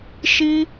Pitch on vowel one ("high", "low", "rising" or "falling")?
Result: high